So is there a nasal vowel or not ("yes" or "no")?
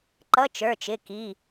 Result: no